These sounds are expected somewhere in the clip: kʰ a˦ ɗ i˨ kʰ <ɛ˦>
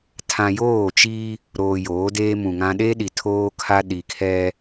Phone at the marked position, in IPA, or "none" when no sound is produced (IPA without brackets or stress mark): ɛ˦